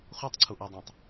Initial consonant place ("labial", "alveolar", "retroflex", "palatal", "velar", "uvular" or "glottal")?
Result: uvular